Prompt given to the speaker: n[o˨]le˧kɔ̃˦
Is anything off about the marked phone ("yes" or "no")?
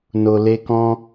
no